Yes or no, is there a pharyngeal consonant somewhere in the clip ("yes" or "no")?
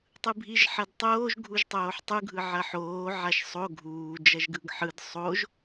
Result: yes